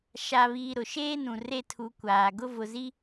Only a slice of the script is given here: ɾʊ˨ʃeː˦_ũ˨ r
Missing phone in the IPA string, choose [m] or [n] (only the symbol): n